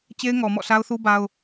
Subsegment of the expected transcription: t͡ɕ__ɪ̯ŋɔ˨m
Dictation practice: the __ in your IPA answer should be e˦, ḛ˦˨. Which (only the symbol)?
e˦